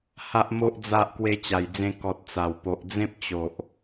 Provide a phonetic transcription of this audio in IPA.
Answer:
h a˨ ʔ m o˨ ʔ d͡z a˨ ʔ k w e˧ t͡ɕ a˨˩ j d͡z ẽ˧ k ɔ˨ t̚ t͡s a˨˩ w p o˨ ʔ d͡z ẽ˦ p̚ t͡ɕ o˨ ʔ

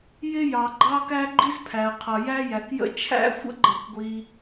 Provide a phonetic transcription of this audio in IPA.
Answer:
j ɪ˥ j ɑ˩ ɡ͡ǃ ɑ˥ k æ˥ ɡ͡ǃ i˥ z pʰ æ˩ ə̯ qʰ ʌ˩ j æ˥ j æ˩ k j ə̰˥ t͡ʃʰ æ̰˥ xʷ ə̰˥ ɡ͡ǃ ʌ˩ kʷ ɡʷ i˩

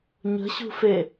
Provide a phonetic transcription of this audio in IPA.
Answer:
ɲ ə̤ ɕ ṳ f e

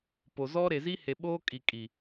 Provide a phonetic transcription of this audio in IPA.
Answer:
p o˨ z ɔ˦ ɾ e˨ z i˦ h e˨ ɓ oː˦ kʼ i˨ kʼ i˨

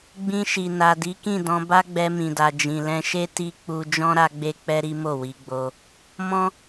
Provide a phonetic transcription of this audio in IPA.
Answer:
ɡ͡b ĩ˧ ʃ i˨ n a˨ d i˨˦ k ĩ˦˨ d ɔ̃˧ b a˦ ɡ͡b ɛ˧ m ĩ˨ d a˨ d͡ʒ ĩ˨ l ɛ̃˧ ʃ e˦ t i˦ k͡p u˦ d͡ʒ ɔ̃˦ ɾ a˦ ɡ͡b e˦ k͡p ɛ˦ ɾ i˦ m o˦˨ w i˧ ɡ͡b o˧ | m ɔ̃˦

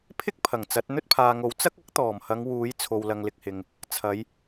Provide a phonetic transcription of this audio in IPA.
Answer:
pʰ ɪ˥ k̚ pʰ ɐ˨˩ ŋ t͡s ɐ˨˥ t̚ n̪ ɵ˥ t̚ pʰ aː˨ ŋ o˨˥ w t͡s ɐ˥ k̚ ɐ˥ k̚ t̪ ɔː˨˩ m h ɐ˨˧ ŋ w uː˨˥ j t͡sʰ o˨ w l ɐ˨ ŋ l ɪ˨ k̚ h ɪ˨ ŋ | t͡sʰ ɐ˨˧ j

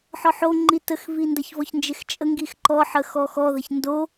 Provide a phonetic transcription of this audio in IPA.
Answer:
ħ ɔ ħ o ŋ͡ǃ i t ə x v i n d ɐ ç v ɔ ç n d͡ʒ e x t͡ʃʼ ə ŋ ɡ i x ǃ ɔ ħ ə x ɔ x ɔ ð ɐ ç n d o

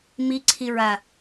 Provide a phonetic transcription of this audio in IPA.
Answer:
m i ǀʰ i ɹ a

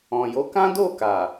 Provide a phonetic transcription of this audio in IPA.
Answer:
ɔ̃˨ j o˨˦ k ã˦ d o˦˨ k a˨

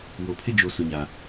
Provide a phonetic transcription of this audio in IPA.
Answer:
w o˨ pʰ ɪ˦ d͡ʒ o˨ s ʊ˨ ɲ a˨

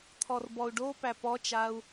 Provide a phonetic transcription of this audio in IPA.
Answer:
t̪ʰ ɔ r b ɔ u̯ ɖ o p æ p ɔ t͡ʃ a u̯

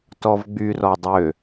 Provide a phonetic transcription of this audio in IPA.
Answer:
t ɔ v ɡ͡b y r ɔ dˤ ø

